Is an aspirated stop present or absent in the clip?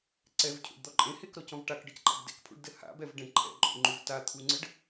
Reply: present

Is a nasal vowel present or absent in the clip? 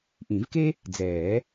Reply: present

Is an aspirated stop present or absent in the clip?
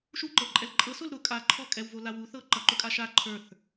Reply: present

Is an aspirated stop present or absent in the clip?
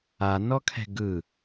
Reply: present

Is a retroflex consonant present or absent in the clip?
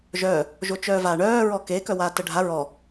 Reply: present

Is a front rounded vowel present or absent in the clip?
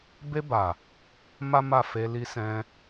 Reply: absent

